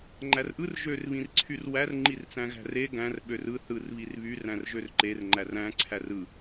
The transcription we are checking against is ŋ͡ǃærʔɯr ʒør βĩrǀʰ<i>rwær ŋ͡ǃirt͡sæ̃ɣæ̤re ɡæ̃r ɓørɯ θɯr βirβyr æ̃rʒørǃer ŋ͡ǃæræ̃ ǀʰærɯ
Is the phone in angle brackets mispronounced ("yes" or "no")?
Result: yes